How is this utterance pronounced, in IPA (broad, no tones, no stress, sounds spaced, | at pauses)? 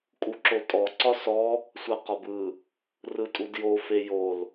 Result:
kʼ u ǁ o tʼ ɔ ǀ ɒ s ɔ | sʷ a q ɒ b ɯ | r ɯ tʼ u d j o f e j o l